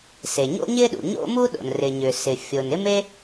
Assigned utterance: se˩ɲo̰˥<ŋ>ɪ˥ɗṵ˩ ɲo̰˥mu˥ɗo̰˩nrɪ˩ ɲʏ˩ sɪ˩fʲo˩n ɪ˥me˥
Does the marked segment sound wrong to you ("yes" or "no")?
yes